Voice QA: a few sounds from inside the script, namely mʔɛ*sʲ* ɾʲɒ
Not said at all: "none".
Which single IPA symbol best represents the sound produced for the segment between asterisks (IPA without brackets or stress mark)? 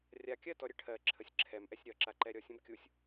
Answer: sʲ